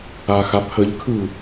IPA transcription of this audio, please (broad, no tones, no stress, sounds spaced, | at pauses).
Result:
a x a pʰ ə ʎ kʰ ɯ